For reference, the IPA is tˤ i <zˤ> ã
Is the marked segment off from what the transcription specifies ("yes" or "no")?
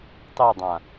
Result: yes